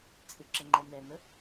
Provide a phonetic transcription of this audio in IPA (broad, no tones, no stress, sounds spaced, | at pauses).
t͡sʼ ɪ ǁ ə ŋ͡ǃ ɛ n ɛ n ə